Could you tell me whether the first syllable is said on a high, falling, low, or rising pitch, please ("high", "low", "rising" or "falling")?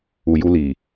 low